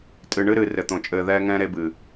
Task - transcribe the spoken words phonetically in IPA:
tʼɨ˨ ɳɨ˦ɾɨ˨ rɘ˨t̪õ˨t͡ʃʼɘː˦˨ ðɛː˦ŋɛ̃ː˦ ɾe˦bɨ˨

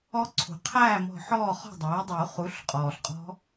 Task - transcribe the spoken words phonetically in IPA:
ɔ˦˥ ǀʰṳ˩qʰæː˥˨mɔ̤˧˩ ħɔː˥˨χɔ̤˥˨dˤæː˩˥dˤuː˨˩˦ χu˩˥ɬqʼɔː˩ɬqʼɔ̤˦˥

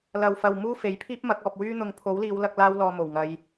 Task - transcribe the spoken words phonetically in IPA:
lɐ˨wfɐ˨w muː˥fe˨˥jpʰiː˥p̚mɐ˨˥k̚ ɔː˨p̚wyː˥ n̪ʊ˨˧ŋpʰo˨˥wliː˨˧wlɐ˧k̚ laː˥wlɔː˧mo˨˩wŋɐ˨˧j

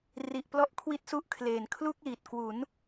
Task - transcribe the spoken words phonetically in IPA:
ri˨˩ʔplɔ˦˥ʔ kʰwi˦˥t̚su˦˥ʔkʰleː˨˩n kʰlu˥˩k̚liː˨˩t̚ kwu˩˦n

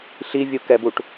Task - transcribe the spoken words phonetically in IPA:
ɬivʲukɛbuʈ

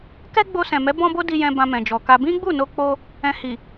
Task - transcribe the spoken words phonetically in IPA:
kɛ˦ɡ͡bo˧ sɛ̃˨mɛ˨˦ bɔ̃˦bo˦di˧jɛ̃˧ bã˧mɛ̃˨d͡ʒɔ˨ka˧ bĩ˦ɡ͡bu˦˨no˧k͡po˧ | ɛ̃˧hi˨

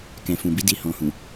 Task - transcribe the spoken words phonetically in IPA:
kɛ̃˨fũ˨bi˨˦di˧ hɔ̃˨hũ˨

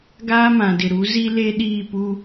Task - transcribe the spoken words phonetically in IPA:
ɡaː˦mã˨dɪ˨ɾu˨˦ zi˦le˦ ɗiː˦˨pu˦

